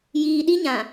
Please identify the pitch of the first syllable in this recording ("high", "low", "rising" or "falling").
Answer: low